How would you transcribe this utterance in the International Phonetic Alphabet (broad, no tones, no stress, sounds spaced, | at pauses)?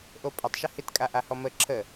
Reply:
ʔ o pʼ ə tˤ ʃ ə h ɪ t kʼ a ʔ a h ɔ m ə ǁʰ ə